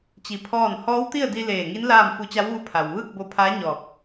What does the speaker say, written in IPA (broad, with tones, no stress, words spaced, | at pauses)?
t͡ɕi˧pʰɔː˥˨n hɔː˧˥wt̪i˥˨ə̯di˧ leː˧˩ŋi˧˥n laː˥˨mfu˧˥ t͡ɕa˧˥wʋu˧˥ pʰa˩wʋɯː˥˨k̚bo˧pʰaː˧˥ ɲɔː˧˩k̚